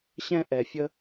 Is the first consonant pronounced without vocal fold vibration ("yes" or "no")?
yes